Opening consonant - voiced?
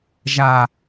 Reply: yes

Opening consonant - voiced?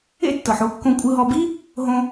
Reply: no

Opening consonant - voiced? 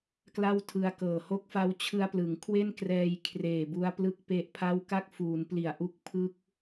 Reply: no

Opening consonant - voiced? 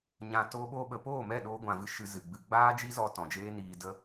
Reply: yes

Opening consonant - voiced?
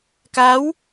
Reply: no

